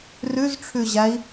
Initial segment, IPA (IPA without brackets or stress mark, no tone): r